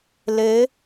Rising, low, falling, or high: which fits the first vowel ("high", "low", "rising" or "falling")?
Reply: rising